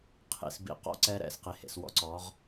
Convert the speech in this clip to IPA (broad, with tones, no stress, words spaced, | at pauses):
qʰḭ˨sbḭ˨˦qɔ̰˦ ǀɛ˦ɾɛ̰˨s qi˨hḛ˨swɔ̰˦ǀɔ˨˦ʁ